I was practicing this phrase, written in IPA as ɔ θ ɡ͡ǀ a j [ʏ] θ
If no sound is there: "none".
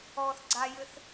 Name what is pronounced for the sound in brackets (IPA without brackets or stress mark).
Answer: ʏ